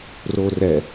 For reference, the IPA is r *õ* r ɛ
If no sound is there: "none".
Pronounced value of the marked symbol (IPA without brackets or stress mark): o